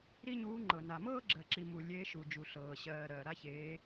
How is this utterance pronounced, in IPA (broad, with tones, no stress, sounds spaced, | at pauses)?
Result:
ɾ i˥ ɲ uː˧˥ ŋ͡ǃ ɤ˨ n a˨ m ɤː˥ ɡ͡ǁ ɜ˨ ǁ i˨ m u˨ lʲ eː˧˥ ʃ u˨ d͡ʒ u˨ ɬ ɤː˨ ɕ ɜː˨ ɾ ɜː˨ ɾ a˥ ç eː˧˥